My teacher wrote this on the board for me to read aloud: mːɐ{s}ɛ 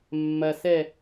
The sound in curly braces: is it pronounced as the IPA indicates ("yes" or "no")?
yes